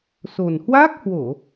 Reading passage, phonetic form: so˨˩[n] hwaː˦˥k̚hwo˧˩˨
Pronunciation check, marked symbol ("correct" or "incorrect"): correct